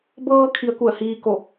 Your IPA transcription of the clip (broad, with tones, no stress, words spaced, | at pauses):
bɤː˧ kʰi˧˥ə̯ku˧˩ə̯hiː˧ ko˧˩